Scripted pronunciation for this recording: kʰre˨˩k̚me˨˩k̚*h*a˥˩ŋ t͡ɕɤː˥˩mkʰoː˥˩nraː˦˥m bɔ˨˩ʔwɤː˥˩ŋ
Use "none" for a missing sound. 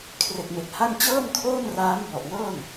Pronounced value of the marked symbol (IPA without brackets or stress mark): h